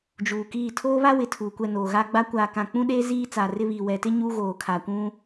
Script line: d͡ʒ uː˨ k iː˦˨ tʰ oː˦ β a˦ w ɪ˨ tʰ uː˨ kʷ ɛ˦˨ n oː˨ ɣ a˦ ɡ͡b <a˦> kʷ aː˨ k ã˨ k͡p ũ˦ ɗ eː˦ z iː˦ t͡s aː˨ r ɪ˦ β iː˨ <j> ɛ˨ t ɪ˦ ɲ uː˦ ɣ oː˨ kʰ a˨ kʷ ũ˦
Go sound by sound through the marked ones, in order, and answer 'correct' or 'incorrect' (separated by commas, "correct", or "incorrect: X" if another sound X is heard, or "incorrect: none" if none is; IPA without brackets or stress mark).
correct, incorrect: w